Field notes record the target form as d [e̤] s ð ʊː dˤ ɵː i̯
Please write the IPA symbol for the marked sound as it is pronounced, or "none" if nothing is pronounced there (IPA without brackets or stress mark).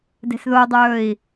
e̤